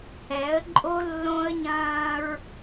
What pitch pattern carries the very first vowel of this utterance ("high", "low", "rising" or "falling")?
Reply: rising